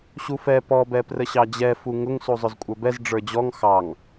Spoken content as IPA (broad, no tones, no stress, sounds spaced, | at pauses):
ɕ u f ɛ p ɔ b ɛ p r ə ɕ ɑ d͡ʑ ɛ f u ŋ ʊ ŋ s u zˤ ʊ z kʷʼ ə˞ b ɛ z ɖ͡ʐ ə˞ d͡ʑ ɔ ŋ x ɑ ŋ